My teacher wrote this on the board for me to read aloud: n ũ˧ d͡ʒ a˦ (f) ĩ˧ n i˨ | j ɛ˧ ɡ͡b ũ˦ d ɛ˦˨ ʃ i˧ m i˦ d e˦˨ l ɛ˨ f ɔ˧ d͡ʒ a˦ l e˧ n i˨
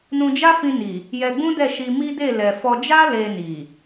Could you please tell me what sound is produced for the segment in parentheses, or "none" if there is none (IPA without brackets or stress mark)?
f